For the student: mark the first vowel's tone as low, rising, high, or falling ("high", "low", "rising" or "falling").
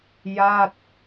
falling